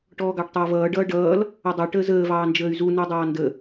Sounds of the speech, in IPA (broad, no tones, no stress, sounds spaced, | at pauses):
ʈ ɔː ɡ ɑ ʈ tˤ ʌː v ʌː ɖ ʌː ɖ ʌː l | ʌ dˤ ʌ ʈ əː z əː v ɑː n d͡ʒ əː y̯ z u n u dˤ ɑː n d ə